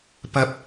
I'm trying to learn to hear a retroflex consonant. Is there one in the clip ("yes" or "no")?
no